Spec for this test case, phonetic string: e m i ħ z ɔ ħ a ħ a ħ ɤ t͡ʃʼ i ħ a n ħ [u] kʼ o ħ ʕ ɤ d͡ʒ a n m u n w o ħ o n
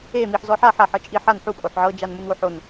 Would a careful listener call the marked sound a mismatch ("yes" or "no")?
no